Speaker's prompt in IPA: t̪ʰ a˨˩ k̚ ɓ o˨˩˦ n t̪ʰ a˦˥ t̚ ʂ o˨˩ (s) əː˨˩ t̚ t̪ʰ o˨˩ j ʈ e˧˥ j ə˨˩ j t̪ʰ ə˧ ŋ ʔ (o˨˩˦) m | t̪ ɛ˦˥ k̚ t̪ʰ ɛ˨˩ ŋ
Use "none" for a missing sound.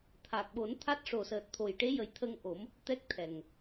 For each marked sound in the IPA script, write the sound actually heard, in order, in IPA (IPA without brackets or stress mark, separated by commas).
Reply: s, o˨˩˦